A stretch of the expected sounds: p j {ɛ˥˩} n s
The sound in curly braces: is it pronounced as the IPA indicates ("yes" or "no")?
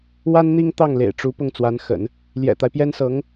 no